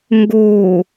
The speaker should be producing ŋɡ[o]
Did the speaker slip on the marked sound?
no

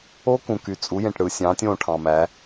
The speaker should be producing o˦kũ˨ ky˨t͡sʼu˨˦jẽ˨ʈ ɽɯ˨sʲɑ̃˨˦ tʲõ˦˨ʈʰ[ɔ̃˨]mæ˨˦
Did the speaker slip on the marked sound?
yes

